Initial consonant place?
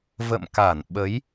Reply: labial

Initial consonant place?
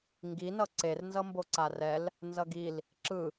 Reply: velar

